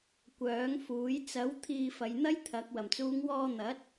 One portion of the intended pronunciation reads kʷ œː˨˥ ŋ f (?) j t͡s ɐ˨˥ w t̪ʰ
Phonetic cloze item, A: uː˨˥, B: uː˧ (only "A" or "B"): A